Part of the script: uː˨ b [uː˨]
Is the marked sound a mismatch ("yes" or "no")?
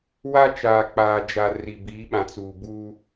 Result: yes